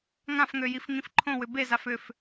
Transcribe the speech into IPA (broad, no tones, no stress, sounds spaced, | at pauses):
ŋ ã f ŋ ø j i f ŋ ĩ f ǃʰ õ w ʏ b e z a f ʏ f